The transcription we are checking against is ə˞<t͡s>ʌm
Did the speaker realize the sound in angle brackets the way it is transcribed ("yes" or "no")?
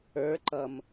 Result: no